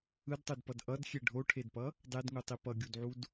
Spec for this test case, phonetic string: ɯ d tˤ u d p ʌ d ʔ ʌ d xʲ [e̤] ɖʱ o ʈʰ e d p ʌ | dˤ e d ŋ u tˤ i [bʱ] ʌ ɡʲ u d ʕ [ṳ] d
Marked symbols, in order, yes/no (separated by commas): no, no, no